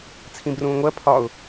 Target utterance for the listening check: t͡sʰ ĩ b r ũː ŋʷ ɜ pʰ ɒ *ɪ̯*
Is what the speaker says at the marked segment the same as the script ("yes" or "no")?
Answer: no